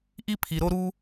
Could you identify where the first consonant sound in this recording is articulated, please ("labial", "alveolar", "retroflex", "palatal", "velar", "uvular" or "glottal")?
glottal